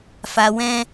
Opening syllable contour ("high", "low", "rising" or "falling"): low